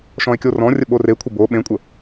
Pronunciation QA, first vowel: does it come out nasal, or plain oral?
nasal